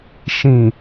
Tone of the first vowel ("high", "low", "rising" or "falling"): low